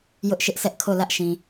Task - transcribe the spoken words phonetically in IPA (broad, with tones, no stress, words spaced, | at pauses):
jʊ˦ʔʃɪ˦ʔ sʰɛ˦ʔkʰo˦˨lä˦ʔʃĩ˨